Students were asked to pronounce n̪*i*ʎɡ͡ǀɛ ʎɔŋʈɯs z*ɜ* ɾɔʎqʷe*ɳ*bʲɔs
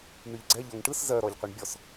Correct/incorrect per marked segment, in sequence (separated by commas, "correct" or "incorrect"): incorrect, correct, correct